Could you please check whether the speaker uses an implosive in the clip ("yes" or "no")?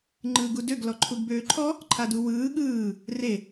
yes